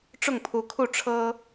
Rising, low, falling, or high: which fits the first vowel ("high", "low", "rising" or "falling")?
falling